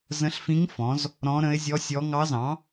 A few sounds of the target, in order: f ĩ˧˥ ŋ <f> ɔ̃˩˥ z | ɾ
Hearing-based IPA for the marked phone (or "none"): f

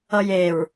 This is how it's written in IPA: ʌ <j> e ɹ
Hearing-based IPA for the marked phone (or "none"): j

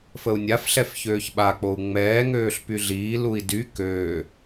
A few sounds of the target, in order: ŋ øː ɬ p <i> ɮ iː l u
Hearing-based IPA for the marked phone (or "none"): y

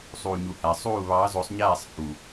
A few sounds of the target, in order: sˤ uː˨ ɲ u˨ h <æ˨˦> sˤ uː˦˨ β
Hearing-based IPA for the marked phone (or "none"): æ˨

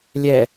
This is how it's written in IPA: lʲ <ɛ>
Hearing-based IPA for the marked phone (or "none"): ɛ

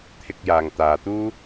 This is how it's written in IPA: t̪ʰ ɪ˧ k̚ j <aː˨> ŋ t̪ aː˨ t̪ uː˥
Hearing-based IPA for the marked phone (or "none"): aː˨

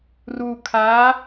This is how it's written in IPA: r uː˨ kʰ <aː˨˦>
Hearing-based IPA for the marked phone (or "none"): aː˨˦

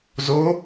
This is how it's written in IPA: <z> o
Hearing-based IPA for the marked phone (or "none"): z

